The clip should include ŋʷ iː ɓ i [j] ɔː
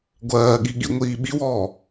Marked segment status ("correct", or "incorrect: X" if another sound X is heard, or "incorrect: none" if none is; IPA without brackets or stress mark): incorrect: w